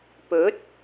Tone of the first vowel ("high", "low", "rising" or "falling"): rising